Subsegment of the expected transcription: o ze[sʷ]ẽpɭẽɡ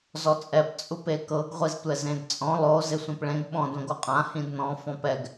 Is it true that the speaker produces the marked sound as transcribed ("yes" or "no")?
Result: yes